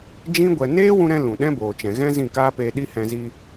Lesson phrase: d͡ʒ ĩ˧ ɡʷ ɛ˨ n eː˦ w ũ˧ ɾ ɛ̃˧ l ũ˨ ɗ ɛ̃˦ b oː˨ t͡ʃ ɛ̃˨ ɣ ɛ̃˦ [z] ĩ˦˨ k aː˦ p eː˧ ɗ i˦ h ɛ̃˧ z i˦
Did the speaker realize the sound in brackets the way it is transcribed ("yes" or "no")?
yes